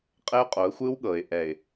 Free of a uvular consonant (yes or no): no